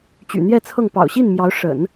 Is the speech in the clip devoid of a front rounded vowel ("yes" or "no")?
no